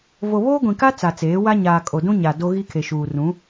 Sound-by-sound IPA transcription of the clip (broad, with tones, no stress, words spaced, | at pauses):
vo˨βoː˦ɡʷĩ˨ka˦ t͡sa˨t͡seː˨˦wa˦ ɲaː˨kʼo˨dũ˦ɲa˨ do˦ɣi˦kʰe˨ʃuː˨ rũ˨˦